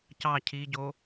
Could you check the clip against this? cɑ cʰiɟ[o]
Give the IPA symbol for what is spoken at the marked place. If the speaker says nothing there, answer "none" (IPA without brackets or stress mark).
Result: o